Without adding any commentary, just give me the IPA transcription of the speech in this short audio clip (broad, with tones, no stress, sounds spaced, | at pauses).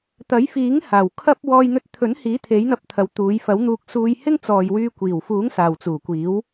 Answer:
t̪ ɐ˨˥ j f iː˨˥ ŋ h aː˨˩ w kʰ ɐ˥ p̚ w ɔː˧ j n̪ ɵ˧ t̚ t̪ʰ ɵ˨˥ n h iː˨˥ t̪ʰ e˨˥ j n̪ ɐ˨˥ p̚ t̪ʰ ɐ˨˧ w t̪ uː˨˧ j f ɐ˨˥ w n̪ uː˧ k̚ s uː˧ j h ɪ˥ ŋ t͡s ɔː˨ j w yː˧ kʷ iː˨˩ w f uː˨˥ ŋ s aː˨ w t͡s uː˨˩ kʷ iː˨˥ w